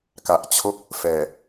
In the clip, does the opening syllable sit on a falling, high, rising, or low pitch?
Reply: low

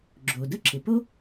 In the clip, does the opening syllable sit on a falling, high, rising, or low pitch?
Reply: low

